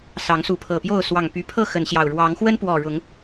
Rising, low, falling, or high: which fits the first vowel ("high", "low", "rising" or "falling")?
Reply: rising